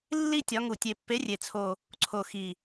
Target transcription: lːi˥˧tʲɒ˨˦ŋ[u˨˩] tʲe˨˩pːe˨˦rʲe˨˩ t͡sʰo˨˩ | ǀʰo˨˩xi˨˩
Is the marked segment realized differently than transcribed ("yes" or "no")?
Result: no